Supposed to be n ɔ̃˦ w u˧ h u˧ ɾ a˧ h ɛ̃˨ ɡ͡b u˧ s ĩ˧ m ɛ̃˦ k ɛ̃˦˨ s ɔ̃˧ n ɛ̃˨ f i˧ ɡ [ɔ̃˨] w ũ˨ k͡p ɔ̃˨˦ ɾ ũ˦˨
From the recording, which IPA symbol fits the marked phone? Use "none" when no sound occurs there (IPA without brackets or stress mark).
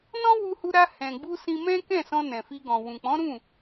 ɔ̃˨